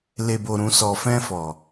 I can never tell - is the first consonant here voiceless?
no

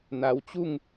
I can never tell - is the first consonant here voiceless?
no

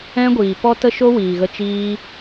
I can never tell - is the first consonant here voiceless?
no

